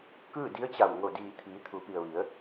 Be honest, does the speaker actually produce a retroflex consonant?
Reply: no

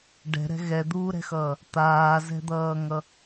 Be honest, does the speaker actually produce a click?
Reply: no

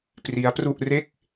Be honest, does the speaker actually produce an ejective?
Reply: no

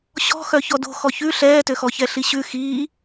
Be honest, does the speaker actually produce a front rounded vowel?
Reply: yes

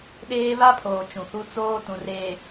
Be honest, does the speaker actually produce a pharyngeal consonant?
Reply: no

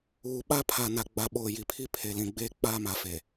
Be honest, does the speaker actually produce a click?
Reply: no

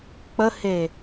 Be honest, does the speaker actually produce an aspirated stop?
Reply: no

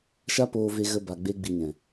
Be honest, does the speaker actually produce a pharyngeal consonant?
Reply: no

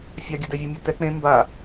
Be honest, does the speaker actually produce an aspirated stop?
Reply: no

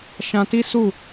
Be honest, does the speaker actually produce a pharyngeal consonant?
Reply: no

